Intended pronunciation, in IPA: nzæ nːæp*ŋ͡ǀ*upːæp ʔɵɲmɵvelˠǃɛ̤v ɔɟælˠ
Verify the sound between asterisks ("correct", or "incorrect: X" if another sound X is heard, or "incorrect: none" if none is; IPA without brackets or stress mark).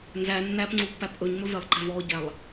correct